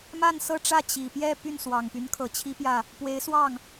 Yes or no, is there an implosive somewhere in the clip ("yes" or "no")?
no